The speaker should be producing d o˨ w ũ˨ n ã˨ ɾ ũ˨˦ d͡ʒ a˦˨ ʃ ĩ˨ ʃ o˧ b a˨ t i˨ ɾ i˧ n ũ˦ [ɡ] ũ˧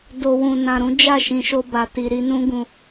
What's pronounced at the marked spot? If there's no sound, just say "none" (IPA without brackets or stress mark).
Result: ɡ